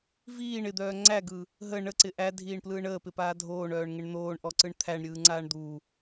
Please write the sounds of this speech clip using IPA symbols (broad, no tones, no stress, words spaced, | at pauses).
viːɳ ɪd̪œː ŋ͡ǀæɡɯ | ɦə ɳəǀɪ ʔædʱiːɳplɯːɳ əːpɪpaː dʱoːɳœːɳŋɪɳ n̪oːɳʔɔǀɯɳ t̪ʰæɳɾʲɯːŋ͡ǀaːɳ d̪u